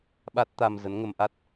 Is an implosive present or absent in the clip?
present